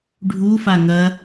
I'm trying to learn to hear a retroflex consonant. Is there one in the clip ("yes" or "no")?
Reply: yes